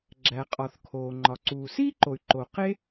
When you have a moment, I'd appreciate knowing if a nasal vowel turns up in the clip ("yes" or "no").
no